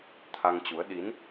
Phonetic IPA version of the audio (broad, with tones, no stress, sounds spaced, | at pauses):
t̪ʰ a˧ ŋ t͡ɕ u˨˦ ə̯ ɗ i˨˦ n